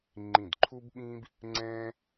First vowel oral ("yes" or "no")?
no